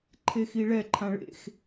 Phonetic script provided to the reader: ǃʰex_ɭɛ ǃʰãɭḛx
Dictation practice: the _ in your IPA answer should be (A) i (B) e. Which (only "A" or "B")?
A